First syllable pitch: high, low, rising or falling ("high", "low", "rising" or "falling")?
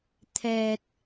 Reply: low